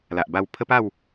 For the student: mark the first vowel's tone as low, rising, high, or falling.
low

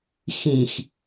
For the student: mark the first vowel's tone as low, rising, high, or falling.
low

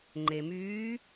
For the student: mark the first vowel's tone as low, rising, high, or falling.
low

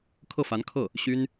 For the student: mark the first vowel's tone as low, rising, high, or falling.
falling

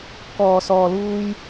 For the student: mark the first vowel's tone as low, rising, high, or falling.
low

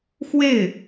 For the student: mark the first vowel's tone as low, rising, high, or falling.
falling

